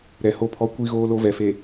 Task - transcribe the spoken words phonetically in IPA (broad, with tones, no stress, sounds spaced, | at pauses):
ɾ ɛ˨ h o˨ pʰ ɔ˨ kʷ i˦ ɣ oː˦ l o˦ v ɛ˨ f e˨